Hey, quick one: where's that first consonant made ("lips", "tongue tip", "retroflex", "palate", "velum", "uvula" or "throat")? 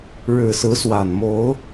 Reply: retroflex